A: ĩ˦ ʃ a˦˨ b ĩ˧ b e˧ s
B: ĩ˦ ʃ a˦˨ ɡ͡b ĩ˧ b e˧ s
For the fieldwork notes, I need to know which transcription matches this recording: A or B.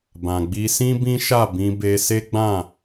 A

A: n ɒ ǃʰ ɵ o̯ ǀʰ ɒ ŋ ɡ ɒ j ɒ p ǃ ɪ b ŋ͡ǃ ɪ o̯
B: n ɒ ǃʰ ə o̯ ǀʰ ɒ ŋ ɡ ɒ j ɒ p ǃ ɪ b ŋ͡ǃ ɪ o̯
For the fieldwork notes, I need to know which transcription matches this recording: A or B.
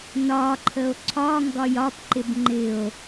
B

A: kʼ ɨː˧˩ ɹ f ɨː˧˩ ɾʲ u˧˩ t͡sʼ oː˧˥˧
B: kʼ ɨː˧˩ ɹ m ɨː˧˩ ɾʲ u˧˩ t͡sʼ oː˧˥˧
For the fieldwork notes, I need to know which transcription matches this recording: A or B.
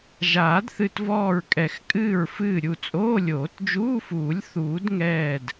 A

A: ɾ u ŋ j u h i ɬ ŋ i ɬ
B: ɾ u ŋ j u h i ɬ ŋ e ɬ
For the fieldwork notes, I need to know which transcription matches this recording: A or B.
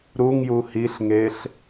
B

